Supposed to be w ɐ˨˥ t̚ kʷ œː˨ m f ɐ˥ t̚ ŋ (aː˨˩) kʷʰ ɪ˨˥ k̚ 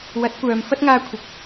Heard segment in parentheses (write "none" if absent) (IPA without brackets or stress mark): aː˧